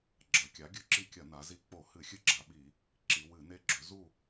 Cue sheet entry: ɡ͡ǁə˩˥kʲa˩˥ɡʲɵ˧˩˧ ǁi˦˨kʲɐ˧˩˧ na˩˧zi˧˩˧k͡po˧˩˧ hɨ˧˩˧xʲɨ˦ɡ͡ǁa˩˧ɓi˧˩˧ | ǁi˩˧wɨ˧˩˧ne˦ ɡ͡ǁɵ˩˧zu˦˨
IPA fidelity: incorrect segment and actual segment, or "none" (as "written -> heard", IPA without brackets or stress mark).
ə˩˥ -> ɐ˩˥